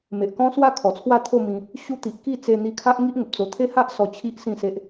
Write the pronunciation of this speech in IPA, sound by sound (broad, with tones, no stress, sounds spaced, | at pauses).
m e˨ ʔ k ɔ̃˦ s w a˥˧ kʰ ɔ˨˩ t͡sʰ w a˥˧ t̪ʰ o˥˧ m ĩ˧ | ɕ u˧ t̪ i˨ ʔ k i˥˧ t͡s e˧ n̪ i˧ kʰ a˦ ʔ ŋ i˦ ʔ ŋ ə˨ p̚ t͡s o˧ t̪ʰ e˦ h a˦ ʔ s ɔ˧ t͡ɕʰ i˦ ʔ s ĩ˥˧ s e˦ ʔ